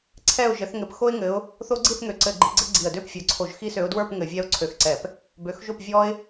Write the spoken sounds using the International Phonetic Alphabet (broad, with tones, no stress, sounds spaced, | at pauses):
ǀʰ ɛ˥˨ ʊ̯ ʒ ɘ˨˦ θ ŋ ɘ˨˦ p x o˦ ɪ̯ ŋ ɘ˨˦ ʊ̯ | θ o˦ ɡ͡ǀ i˥˨ θ ŋ ø˨˩ ǀ ɘ˧˩˧ ɡ͡ǃ i˨˦ ɡ͡ǀ ɘ˦ ɡ͡ǀ i˨˩ ə̯ d ø˥˨ p fʲ ə˞˨˩ ǀʰ o˧˩˧ ʒ x i˦ s ø˨˦ ʊ̯ d w ə˞˥˨ p ŋ ɘ˧˩˧ vʲ ɛ˦ ʊ̯ ǀʰ ø˧˩˧ x ǀ ɛ˧˩˧ p | b ø˨˦ x ʒ o˥˨ p vʲ ɔ˦ ɪ̯